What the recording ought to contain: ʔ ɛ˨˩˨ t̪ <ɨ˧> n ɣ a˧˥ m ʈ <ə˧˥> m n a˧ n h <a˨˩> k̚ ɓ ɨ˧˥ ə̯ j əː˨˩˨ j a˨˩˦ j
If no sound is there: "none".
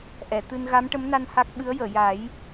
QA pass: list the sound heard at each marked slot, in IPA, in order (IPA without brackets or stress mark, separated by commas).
ɨ˧, ə˧˥, a˦˥